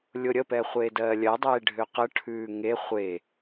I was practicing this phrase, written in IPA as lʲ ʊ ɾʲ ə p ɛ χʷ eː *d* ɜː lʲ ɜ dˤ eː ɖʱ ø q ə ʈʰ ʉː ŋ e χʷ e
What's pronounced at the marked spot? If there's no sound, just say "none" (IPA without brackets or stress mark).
d